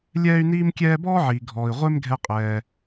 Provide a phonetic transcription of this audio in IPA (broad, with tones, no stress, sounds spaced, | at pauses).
lʲ ɛː˥ y̯ n iː˥ m kʲ ɛː˥ b ɔː˥ ʕ iː˩ ɡʱ ɔː˩ i̯ ʁʷ e˥ m ɡʱ ɛ˧ qʼ ɛː˩